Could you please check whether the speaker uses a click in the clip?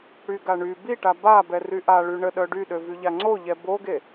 yes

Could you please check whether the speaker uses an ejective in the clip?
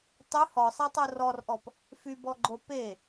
no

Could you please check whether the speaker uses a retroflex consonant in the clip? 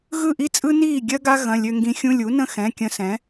no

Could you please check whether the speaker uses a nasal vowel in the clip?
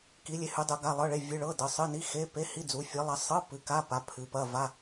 no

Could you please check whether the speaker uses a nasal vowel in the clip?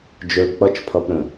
yes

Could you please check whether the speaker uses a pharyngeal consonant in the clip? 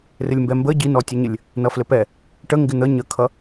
no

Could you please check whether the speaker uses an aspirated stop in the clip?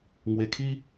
yes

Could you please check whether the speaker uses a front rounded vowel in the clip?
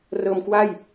no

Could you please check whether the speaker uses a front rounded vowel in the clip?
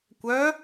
yes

